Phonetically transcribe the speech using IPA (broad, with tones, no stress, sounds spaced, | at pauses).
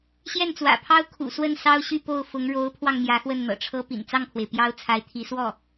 ɕ j ɛ˥˩ n t͡s w ä̰˨˩ pʰ ɑ˥ ʊ̯ kʰ ṵ˨˩ s w ə˥˩ n s ɑ˥ ʊ̯ ɕ y˥˧ p o˥˩ ʊ̯ f ʊ˧˥ ŋ ɻ o˧˥ ʊ̯ pʰ w ɑ˧ ŋ m j ä˧˥ x w ə˥˩ n n̪ ɤ̰˨˩ ʈ͡ʂʰ ɤ˥ p ḭ˨˩ n t͡s ɑ˥˩ ŋ pʰ w e˩ ɪ̯ p j ɑ˥ ʊ̯ t͡sʰ a˧˥ ɪ̯ t̪ʰ i˧˥ s w ɔ˥˩